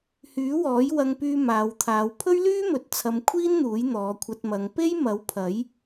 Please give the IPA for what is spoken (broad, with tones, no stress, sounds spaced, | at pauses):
h yː˨˥ w ɔː˨˥ j w ɐ˧ ŋ p yː˧ m aː˨˧ w t̪ʰ aː˨˧ w pʰ ɵ˥ ɥ l yː˥ m ɵ˨ t̚ t͡sʰ ɐ˧ m kʷʰ iː˥ n n̪ uː˨˥ j n̪ ɔː˨˧ kʷʰ ɐ˧ t̚ m ɐ˨˧ ŋ p e˥ j m ɐ˨˥ w pʰ ɐ˨˥ j